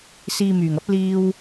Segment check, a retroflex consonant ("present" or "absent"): absent